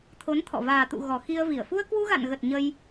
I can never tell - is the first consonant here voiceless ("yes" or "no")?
yes